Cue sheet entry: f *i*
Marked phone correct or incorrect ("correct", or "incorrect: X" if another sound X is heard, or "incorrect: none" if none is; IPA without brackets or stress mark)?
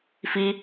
correct